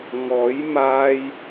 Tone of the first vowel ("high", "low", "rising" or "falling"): rising